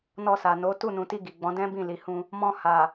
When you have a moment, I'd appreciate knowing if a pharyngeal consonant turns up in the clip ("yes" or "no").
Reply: no